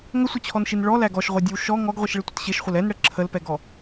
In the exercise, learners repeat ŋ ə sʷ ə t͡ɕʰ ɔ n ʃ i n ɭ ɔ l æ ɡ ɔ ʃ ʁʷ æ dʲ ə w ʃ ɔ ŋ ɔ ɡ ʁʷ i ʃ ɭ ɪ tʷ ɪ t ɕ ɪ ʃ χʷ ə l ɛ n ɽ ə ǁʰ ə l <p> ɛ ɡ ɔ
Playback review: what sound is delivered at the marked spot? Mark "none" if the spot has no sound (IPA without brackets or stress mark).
p